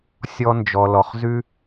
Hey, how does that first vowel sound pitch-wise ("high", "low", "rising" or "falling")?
high